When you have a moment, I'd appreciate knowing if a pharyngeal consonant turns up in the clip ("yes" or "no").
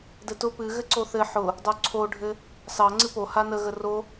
yes